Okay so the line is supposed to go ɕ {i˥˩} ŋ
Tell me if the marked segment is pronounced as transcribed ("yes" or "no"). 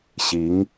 no